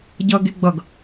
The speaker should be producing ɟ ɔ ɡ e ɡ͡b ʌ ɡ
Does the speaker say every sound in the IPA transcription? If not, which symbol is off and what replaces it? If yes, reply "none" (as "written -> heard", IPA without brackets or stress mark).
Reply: ɔ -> ʌ